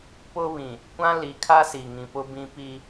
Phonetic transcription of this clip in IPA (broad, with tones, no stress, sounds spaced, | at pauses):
p ʊ˦ β ĩ˨ | kʷ ã˦ l i˨ kʰ a˦ s i˨ ŋ ĩ˨ p ʊ˦ b ĩ˦ p i˦